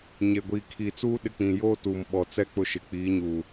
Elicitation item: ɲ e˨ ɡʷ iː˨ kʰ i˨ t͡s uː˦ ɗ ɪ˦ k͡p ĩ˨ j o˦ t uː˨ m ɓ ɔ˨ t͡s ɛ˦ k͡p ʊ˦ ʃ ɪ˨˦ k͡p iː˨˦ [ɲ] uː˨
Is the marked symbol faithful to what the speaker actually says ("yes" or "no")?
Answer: yes